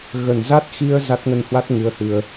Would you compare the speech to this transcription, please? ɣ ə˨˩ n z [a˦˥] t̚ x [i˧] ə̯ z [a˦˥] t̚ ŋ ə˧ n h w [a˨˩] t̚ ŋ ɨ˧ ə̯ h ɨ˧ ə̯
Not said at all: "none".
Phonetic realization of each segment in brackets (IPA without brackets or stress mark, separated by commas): a˦˥, i˧, a˦˥, a˦˥